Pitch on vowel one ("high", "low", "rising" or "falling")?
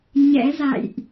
rising